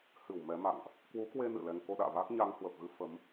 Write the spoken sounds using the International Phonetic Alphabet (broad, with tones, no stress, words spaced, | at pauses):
hɨ˧˩w mɛ˨˦ma̰˧˨ŋʔ | kwu˨˦kwe˧ nɨ̰˧˨lɛ˧ŋ ko˧ ɗa̰ː˧˨vaː˦˥k̚ɲa˧ŋ hwə˨˩p̚ɣɨ˧ fə˨˦m